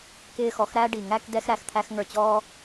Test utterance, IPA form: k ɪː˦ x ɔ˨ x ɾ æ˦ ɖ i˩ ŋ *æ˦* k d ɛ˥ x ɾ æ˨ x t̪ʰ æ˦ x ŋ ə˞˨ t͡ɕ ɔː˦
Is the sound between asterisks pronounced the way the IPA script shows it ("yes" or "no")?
yes